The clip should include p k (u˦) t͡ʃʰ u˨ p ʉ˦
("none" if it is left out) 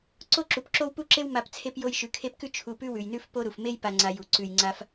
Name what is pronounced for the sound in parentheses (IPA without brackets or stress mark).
ʉ˦